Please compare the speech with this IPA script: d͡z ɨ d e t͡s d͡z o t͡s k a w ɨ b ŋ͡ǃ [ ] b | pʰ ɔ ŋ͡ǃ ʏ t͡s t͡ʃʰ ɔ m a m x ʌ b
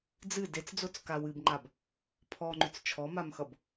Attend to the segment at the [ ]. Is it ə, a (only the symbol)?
a